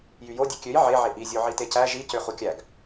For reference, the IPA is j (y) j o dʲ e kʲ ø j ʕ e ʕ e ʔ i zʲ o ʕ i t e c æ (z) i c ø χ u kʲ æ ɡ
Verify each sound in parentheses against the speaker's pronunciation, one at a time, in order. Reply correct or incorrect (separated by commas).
correct, incorrect